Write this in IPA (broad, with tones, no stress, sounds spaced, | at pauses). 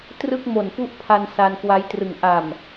t r ɯ˥˩ k̚ m o˨˩ n p u˥˩ ʔ pʰ a˧ n s a˧ n k w a˦˥ j t r ɯ˨˩ ŋ ʔ a˨˩ m